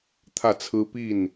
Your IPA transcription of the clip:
t̪ʰä˥˩t͡sʰɹ̩˥ pi˥˩n

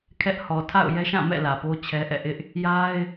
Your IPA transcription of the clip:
kʰɛ˦ʔ hɔ˨ tʰa̰˦˨ʊ̯ jɛ˦ʃã˦˨ mɛ̰˦˨ lä˨po˦t͡ɕʰɛ˦ ʔɛ̰˦˨ʔɪ˦ʔ | ja˦ɪ̯

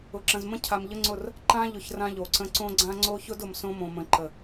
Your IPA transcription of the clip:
ʊ˨ǁə̃˨zmə̃˦ cʰa˨mʎə˦ŋ͡ǀʊ˦˨r | ǃã˦ʎʊ˨ç rã˦ʎo˨ǀə̃˦ ǀõ˦ɡ͡ǀã˦ ŋ͡ǀo˦çʊ˦dʊ˨m sõ˦mõ˨mə̃˨ ǃə˨

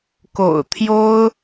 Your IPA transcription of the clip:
ko̰˨˩ʊ̯t̪ʰjo˥ʊ̯

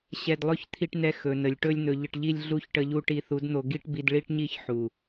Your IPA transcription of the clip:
ɕɛ˧dlˠɵ˦ç t̪ʰi˧ʈnɛ˧ xɵ˨nə˨lʲ ʈɵ˦lʲn̪ɵ˧ʎə˧ʈʎi˦lʲ ɮu˦˨çʈə˧ʎu˧ ʈi˧θu˨˦dn̪o˧ ɡi˦ʈbi˧d ɭi˦ʈɲi˦ç ħu˨

